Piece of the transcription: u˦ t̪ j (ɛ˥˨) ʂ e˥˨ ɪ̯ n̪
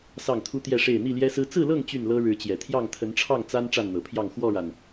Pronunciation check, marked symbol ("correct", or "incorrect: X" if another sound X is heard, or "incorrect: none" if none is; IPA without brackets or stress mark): correct